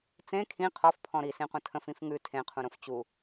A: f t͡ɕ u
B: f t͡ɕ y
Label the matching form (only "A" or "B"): A